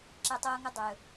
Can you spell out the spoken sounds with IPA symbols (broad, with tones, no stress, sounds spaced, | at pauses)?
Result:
ǁ ɛ˦ tˤ oː˥ ŋ ɵ˥ dˤ ɵː˨